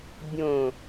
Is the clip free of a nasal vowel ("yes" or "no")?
no